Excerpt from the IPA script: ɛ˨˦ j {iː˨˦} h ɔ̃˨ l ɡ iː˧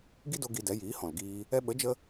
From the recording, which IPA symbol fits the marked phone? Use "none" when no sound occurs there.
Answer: iː˨˦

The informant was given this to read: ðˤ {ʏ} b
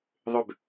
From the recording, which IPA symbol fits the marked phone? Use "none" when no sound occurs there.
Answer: ʏ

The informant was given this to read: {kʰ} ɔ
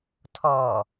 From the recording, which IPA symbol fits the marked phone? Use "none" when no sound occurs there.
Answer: tʰ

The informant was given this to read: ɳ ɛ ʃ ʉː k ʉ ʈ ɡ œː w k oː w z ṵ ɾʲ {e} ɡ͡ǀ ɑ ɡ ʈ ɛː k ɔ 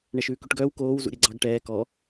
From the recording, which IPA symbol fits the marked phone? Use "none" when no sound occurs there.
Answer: e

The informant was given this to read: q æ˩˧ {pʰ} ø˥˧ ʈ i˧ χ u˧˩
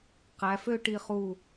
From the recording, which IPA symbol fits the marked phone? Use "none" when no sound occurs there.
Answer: f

